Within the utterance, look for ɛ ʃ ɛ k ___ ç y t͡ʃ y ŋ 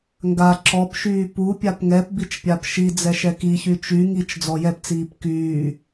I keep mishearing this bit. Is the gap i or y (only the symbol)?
i